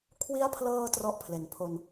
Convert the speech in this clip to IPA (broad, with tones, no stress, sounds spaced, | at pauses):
kʰ w i˦˥ a̯ pʰ l ɤː˧ t r ɔ˥˩ ʔ pʰ l e˩˦ n pʰ o˧ n